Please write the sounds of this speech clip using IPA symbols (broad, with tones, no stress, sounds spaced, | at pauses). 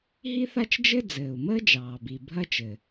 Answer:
ɦ i˥ θ a˥ t͡ʃ d͡ʒ ɘ˥ d͡z ɘː˩ u̯ m əː˥ d͡ʒ ɑː˩ b i˩ bʱ ɐ˥ t͡ʃ ɘ˩